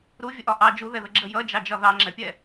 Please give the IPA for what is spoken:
ɾ u vʲ ə ʔ ɒ ʔ ɑ d͡ʒ u ð ɛ ð ə ɡ͡ǁ ə j ʌ d͡ʒ ɑ d͡ʒ ɒ ð ɑ ŋ͡ǁ ɛ pʲ ɛ

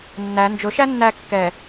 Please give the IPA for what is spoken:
nː æ n d͡ʒ ʊ ʃ æ nː æ kː ɛ

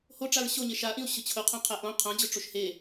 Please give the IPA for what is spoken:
h o ʈ͡ʂ a ɹ ɕ o ɲ e ʃ a ʔ ĩ u̯ ɕ ʊ t͡ɕʰ ʊ qʰ õ qʰ ɛ ʔ õ qʰ ã d͡ʑ ʊ ʈ͡ʂ o ʃ h e

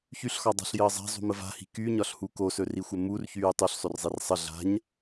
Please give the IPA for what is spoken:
ç y ɬ x ɒ dˤ a̤ ɬ j əː zˤ a̤ zˤ ṳ m ə v a̤ h i̤ k y ɲ ɒ ɬ h u k o s ɵ r i xʷ ɘ m u r ç yː tˤ u ɬ sˤ ɵ r zˤ i r sˤ ə ɮ a̤ ɲ

